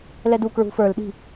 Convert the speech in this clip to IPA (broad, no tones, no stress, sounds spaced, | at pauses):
l ɛ d u k ɹ ṳ f ə˞ l ɗ i̤